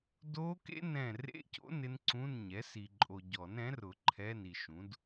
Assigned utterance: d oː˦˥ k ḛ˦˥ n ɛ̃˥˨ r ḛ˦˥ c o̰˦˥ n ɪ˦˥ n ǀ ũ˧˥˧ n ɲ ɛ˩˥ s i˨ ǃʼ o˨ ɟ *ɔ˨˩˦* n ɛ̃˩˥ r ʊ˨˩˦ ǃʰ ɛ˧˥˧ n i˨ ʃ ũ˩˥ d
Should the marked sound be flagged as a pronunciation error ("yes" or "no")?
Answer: no